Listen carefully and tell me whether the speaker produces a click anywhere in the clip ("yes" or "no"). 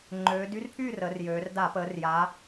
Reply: yes